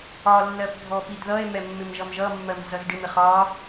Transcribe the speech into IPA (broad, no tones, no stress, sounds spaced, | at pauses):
ɒ lː ɜ p bʱ ɔ p i d ð ʌ e̯ m ɛ mː ɪ m ʒ ʌ m ʒ ʌ mː ɜ m z ʌ z ɖ ɪ m ɪ χ ɒ